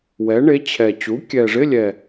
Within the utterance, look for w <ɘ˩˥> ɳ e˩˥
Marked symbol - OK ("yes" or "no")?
no